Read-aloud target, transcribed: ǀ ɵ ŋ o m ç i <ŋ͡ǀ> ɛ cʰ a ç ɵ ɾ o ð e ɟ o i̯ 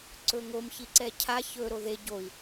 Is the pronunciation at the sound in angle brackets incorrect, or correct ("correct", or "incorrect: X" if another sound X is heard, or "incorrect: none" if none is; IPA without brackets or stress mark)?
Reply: incorrect: ǀ